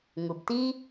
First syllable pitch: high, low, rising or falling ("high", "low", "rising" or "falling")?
low